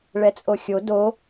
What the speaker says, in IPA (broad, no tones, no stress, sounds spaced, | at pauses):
ɭ ɛ t͡sʼ o xʲ o d o